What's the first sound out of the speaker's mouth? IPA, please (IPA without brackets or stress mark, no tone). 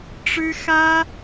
ʈ͡ʂ